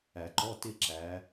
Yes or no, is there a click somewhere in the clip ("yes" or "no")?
yes